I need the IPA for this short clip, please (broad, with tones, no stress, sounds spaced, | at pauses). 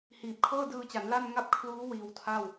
h iː˨˩ p̚ kʰ ɤː˥˩ d ɯː˧ t͡ɕ a˩˦ n l a˥˩ n ŋ a˥˩ p̚ kʰ l uː˦˥ w iː˧ w tʰ a˥˩ w